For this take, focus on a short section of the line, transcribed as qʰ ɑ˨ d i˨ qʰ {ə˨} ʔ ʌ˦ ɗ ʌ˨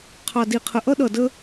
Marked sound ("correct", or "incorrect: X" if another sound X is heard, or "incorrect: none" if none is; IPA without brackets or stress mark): correct